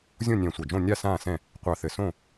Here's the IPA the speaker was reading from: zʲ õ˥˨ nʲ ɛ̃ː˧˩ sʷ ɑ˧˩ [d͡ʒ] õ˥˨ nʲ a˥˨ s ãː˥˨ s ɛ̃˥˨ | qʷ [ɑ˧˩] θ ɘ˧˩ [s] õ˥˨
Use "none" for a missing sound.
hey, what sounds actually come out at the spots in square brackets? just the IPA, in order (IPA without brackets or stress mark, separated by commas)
d͡ʒ, ɑ˧˩, s